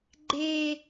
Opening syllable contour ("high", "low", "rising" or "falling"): high